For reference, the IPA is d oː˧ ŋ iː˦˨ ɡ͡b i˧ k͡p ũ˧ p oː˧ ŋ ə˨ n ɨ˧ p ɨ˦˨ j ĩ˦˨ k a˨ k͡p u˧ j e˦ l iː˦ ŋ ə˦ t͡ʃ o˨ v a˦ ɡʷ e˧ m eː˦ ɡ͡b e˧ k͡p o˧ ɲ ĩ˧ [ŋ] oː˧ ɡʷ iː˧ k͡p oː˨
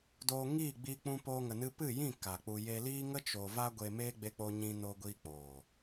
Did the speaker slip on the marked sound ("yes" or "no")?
yes